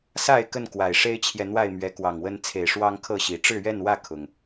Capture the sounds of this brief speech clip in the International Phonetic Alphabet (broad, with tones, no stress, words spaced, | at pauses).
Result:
sa˥˨ɪ̯ kə˥˨nkwa˨˩ɪ̯ ʂe˦ɪ̯t͡ɕʰjɛ˨ n̪wa˥˨ɪ̯ mɥɛ˨˦kwɑ˨˩ŋwə˦n t͡sʰe˨˩ɪ̯ ʂwɑ˦ŋkʰɤ˥˨ɕi˨˦ ʈ͡ʂɻ̩˥˨ɥɛ˥˨nwä˥˨ kʰʊ˨˩ŋ